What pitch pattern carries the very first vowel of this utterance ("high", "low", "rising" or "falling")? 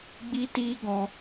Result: high